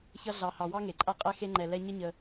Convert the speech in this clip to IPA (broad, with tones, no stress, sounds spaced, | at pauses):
ç ʌ˦ ɮ ɑ˨ h ɑ˨ w ɑ˥ ŋ e˩ ǃʼ a˦ qʼ ɛ˦ x e˦ ŋ͡ǃ ɛ˨ l ɛ˦ ɲ ə˦ ɲ ə˨